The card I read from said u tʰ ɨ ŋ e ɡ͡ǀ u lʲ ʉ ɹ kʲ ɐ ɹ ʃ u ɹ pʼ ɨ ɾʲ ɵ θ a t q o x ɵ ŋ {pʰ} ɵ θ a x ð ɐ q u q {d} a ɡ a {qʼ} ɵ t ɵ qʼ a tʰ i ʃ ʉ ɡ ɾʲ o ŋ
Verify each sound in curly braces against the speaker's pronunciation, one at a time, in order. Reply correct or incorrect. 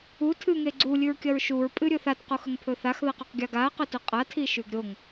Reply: correct, incorrect: ɡʲ, incorrect: q

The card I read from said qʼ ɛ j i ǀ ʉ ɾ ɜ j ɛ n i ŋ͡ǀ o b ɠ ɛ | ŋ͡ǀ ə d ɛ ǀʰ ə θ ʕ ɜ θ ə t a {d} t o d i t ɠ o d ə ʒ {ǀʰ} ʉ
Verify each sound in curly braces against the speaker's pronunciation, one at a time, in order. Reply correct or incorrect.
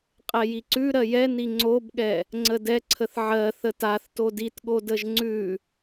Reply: incorrect: θ, incorrect: ŋ͡ǀ

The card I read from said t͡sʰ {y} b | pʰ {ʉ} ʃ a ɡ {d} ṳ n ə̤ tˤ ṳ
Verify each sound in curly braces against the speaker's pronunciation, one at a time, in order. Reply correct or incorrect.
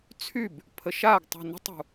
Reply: correct, incorrect: ə, incorrect: tˤ

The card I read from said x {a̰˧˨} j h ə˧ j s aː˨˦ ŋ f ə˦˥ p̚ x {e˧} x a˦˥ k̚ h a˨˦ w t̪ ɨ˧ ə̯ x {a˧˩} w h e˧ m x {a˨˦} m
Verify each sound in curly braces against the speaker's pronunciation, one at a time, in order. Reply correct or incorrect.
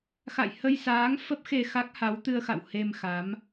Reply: correct, correct, incorrect: a̰˧˨, correct

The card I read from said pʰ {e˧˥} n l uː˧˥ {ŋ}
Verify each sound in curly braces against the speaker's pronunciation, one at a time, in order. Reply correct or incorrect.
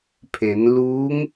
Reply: incorrect: e˩˧, correct

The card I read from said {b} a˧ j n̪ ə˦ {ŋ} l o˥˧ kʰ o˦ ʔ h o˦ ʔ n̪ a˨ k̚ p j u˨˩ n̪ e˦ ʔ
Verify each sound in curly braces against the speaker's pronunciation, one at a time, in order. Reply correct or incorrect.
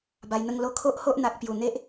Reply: correct, correct

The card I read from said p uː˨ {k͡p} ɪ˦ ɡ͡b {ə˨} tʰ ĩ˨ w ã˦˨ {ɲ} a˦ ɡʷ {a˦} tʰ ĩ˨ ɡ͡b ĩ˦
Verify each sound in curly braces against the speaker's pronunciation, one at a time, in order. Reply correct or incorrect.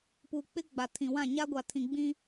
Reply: correct, incorrect: a˨, correct, incorrect: a˨

